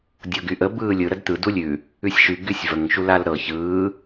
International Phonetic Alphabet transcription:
dʲɤɡyʔə bɯːlʲɯ ɾədt̪ɯ dulʲʉ | ʉsʲʃy ɡysʲvəŋ ʃulalɾɤ çɯː

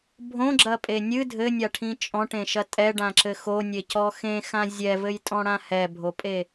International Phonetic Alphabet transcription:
bʱõɡ͡ǁɐpʼe nʲɨ dʱɘnʲaʈʰĩ t͡ʃʼɔ̃ʈẽʃɐ tʼɛɖãǁɘ xonʲecɔ xẽxã zʲɛvɘjtʼɔ̃ɽã hɛbʱopʼe

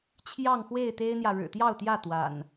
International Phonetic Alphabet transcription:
t͡ɕʰjɑ˥˨ŋxwe˥˨ɪ̯ t̪e˦ɪ̯n̪jä˨ ɻɻ̩˨˩t̪jɑ˥˨ʊ̯t̪jä˥˨ t̪wa̰˨˩n

